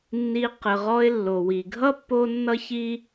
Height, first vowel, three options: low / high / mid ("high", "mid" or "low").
high